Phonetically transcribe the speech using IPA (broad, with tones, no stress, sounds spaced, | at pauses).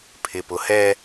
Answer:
pʰ ɪ˨ p ʊ˨ h ɛ˦